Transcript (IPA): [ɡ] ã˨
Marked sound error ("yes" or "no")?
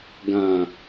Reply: no